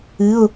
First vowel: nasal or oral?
oral